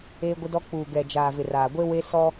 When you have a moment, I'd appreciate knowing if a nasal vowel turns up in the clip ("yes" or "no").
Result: no